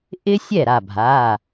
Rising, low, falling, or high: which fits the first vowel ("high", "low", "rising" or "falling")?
high